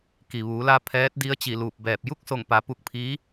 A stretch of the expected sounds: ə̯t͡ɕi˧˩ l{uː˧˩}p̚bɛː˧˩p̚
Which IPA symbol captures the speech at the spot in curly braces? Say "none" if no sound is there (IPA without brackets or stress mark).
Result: uː˧˩